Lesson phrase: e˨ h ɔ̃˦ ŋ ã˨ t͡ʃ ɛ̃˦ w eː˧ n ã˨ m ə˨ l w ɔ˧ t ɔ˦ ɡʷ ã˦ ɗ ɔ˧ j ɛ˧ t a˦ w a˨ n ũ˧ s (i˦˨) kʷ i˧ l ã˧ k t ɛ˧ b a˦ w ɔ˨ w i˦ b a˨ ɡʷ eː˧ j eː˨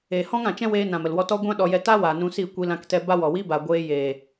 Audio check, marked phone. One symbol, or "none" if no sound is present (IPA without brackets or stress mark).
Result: i˦˨